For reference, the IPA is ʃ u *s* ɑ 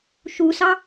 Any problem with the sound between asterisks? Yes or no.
no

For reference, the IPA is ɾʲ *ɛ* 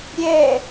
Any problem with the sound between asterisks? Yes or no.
no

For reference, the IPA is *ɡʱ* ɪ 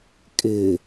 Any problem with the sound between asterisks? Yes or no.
yes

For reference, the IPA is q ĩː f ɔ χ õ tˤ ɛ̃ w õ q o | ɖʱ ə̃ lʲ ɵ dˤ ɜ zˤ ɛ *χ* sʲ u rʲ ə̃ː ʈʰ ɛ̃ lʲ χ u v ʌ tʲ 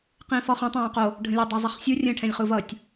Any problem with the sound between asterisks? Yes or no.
no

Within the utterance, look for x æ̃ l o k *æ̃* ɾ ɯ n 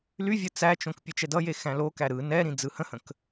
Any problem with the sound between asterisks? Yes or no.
yes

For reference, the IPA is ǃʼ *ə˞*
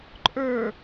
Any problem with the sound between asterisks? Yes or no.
no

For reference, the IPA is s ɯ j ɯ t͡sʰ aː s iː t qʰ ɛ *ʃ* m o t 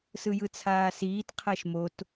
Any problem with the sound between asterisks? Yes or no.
no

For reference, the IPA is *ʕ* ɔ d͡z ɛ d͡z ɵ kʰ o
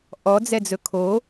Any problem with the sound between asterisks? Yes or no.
yes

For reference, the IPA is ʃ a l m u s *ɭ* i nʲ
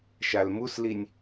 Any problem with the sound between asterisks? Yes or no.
yes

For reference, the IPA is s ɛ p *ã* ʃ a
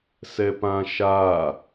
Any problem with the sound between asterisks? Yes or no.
no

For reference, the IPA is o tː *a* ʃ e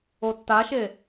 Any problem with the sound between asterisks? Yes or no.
no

